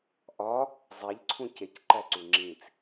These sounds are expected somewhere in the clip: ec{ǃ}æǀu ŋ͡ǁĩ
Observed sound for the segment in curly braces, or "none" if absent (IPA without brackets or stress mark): ǃ